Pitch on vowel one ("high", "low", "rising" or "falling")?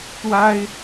high